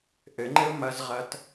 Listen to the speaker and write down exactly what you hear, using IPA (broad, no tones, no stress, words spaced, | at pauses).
ʔɘŋ͡ǃɘʊ̯ mɐzʁɐt